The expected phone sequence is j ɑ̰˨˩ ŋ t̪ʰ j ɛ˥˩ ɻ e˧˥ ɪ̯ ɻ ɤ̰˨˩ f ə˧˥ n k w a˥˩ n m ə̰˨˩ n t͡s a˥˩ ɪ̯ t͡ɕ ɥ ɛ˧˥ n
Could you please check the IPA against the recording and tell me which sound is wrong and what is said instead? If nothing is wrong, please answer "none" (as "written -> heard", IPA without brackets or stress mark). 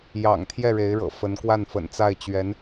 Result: m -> f